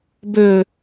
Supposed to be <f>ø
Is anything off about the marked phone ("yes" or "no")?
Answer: yes